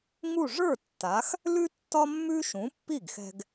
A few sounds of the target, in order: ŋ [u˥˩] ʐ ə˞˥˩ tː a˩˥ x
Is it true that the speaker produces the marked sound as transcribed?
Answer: yes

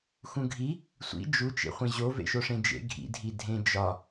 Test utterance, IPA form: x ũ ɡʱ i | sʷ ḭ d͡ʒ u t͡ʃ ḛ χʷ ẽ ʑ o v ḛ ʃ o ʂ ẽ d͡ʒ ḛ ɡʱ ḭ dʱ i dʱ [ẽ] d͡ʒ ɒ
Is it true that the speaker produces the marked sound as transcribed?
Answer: yes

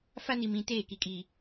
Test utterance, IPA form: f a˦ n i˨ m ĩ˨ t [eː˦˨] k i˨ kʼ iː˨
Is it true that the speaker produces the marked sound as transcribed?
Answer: yes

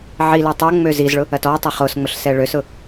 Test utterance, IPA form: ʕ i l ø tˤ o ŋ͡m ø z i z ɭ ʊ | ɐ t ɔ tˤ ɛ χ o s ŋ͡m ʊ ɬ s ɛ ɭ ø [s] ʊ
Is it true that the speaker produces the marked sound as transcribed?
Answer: yes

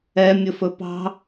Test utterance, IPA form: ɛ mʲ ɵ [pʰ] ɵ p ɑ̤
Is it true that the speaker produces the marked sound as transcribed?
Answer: no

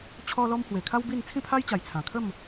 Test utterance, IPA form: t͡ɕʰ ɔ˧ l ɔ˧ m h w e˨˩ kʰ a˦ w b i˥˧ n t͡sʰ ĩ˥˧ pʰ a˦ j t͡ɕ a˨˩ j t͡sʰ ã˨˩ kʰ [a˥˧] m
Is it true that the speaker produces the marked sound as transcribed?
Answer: no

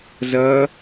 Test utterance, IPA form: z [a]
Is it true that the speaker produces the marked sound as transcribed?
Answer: no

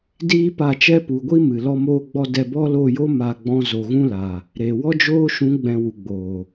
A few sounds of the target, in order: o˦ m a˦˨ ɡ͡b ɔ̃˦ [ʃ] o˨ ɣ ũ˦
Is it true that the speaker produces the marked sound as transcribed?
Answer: no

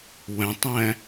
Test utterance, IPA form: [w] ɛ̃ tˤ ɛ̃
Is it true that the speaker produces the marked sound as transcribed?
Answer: yes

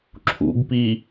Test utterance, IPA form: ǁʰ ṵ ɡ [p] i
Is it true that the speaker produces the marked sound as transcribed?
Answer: yes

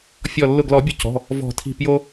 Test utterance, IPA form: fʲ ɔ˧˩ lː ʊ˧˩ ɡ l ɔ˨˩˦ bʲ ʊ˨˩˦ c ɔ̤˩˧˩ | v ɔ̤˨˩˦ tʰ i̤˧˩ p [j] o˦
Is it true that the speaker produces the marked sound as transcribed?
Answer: yes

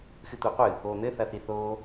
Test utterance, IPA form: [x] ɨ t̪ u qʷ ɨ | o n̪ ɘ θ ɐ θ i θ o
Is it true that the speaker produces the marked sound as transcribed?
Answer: yes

